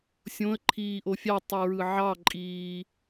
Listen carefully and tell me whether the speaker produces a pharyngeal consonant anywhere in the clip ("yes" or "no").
yes